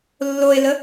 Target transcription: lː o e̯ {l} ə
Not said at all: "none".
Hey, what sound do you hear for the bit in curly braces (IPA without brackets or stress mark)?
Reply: l